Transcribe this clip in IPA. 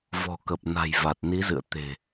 vɔ̤˨˩kə˨˩p̚ na̤˨˩jva˨˩t̚ni˨˦zɨ̰˧˨ə̯ t̪e̤˨˩

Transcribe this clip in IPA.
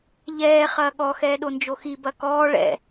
ʎɛː χɐːɠɔ xɛːɗond͡ʒoxi bɐkɔː ɭɛ̰

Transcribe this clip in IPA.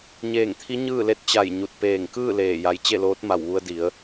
ɲeː˧˩ŋt̪ʰi˧˥ ɲɯː˥˨le˥˨t̚ t͡ɕa˧˩j ɲu˧˩t̚peː˧˩ŋ kɯː˥˨ leː˧˩ja˧j t͡ɕe˥˨loː˧˥t̚ma˧˩w ʋu˧ə̯di˩˧ə̯

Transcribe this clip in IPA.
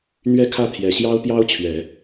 n̪ɥɛ˥kʰä˥˩t̪ʰjɛ˨˩ ɕjɑ˥ʊ̯pjɑ˥ʊ̯t͡ɕʰɥɛ˨˩˦

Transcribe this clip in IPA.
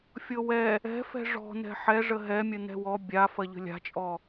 fʲɤwɛ | ɛ̤ fɛ̤ʐɔ̤n̪ɛ̤ ħɛʐə ɦɛmʲə n̪ɛ̤wɔ bʲa fɐʎə̤lʲa̤t͡ʃʼɔ

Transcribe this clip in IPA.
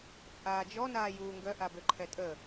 t͡sʼaːd͡ʒɔ naːjuːŋɡœ ʔabøǃʰɛtʼə

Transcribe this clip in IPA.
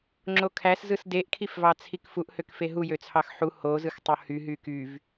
ŋ͡ǁokʰæs zɯsdeʔkʰifvɑ t͡sʰikfuʔhøk feɦujøt͡sʰɑx ħu hozɯxtˤo hyɦy kyv

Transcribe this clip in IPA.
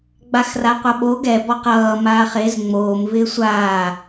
ɡ͡baxraqʷʌɓo ɡɛ bɔqʌː maːχez ŋ͡moːm vɪːsʷaː

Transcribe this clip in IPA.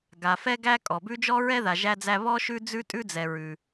ɡa˨ fɛ˦ɡæ˦kʼɔ˩ bʉ˦d͡ʒɔ˥ɹɛ˥ ða˨ʒæ˦d͡zæ˦ βɔ˦ ʃʉ˥d͡zʉ˥tʼʉ˥d͡zɛ˨ ɹʉ˩

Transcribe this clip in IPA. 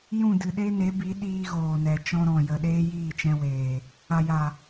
jũ˦˨dɨ˨ɗe˦ ne˨˦bi˨˦ ɗiː˧ɣoː˨nɛ˨t͡ʃɔ̃˧ ɾɔ̃˨jə˨ ɗeː˦jiː˦˨t͡ʃɛ̃˧weː˨ | a˨ja˨

